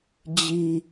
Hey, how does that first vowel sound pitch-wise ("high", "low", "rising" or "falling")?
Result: high